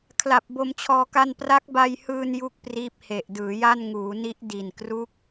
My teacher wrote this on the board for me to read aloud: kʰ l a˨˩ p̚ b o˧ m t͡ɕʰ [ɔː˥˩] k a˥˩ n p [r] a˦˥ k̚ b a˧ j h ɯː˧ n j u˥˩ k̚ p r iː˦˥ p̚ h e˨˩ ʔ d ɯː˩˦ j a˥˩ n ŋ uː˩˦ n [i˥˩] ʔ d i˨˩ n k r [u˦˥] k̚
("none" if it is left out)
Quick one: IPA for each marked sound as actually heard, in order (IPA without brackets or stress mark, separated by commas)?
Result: ɔː˧, r, i˦˥, u˦˥